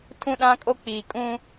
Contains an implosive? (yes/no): yes